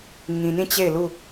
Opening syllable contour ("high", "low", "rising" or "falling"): low